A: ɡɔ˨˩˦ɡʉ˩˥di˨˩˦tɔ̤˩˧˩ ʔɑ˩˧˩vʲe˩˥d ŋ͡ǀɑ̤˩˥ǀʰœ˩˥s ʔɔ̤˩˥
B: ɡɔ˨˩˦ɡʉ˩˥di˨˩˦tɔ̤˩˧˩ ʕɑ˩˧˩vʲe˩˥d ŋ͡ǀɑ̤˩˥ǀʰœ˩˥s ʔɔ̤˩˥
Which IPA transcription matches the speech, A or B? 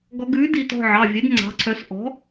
B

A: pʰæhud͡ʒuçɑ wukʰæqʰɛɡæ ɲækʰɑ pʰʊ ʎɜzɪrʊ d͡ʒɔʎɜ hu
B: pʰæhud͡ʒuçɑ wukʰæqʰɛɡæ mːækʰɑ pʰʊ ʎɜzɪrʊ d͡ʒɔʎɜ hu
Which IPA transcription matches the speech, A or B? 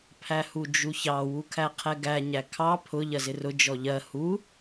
A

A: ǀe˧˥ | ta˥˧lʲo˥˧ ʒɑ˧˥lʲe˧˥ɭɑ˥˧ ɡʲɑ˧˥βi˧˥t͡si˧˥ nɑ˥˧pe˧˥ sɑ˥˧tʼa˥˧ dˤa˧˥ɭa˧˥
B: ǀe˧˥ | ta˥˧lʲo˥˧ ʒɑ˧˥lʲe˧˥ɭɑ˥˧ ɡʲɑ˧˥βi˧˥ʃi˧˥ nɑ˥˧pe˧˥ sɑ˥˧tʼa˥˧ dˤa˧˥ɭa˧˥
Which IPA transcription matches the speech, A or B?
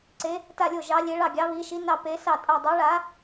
B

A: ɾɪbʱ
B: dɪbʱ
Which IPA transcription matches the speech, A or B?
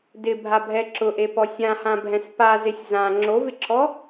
B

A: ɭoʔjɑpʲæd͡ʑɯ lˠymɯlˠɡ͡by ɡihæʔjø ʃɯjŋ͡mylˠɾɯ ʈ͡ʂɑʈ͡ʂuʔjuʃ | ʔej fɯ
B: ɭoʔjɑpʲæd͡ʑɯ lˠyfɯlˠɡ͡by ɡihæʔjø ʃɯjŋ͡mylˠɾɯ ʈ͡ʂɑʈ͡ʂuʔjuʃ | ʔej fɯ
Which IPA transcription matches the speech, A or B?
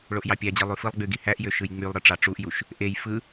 B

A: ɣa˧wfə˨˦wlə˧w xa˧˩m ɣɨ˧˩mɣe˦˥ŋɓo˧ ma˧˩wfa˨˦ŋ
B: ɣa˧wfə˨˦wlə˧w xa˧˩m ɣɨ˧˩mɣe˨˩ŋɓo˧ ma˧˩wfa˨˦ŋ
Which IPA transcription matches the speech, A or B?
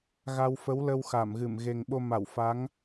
B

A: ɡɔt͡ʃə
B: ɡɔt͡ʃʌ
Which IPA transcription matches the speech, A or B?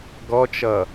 B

